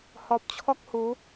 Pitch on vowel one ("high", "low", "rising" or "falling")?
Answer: low